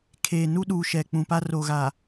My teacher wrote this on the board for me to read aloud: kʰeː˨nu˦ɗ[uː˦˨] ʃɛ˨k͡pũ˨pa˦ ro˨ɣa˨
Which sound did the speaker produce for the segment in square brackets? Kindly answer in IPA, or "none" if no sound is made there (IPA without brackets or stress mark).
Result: uː˨